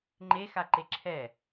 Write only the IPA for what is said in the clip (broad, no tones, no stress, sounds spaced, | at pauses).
ŋ͡ǃ e x a ǃ e ǁʰ ɛ